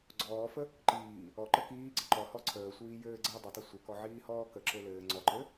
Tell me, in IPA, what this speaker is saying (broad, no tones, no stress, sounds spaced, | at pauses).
ɡ͡ǀ ɔː f ə | ǃ iː | ɔ ǃ ə k iː ɡ͡ǀ ə ǃ ɔ h ɔ ǀʰ əː sʷ iː j ɘː ɡ͡ǀ əː dˤ ə tˤ ɘ sʷ ə k ɔ ʕ iː h ɔː k ə ǁ ɘ l ɘː ŋ͡ǀ ɔ ǃ ɘ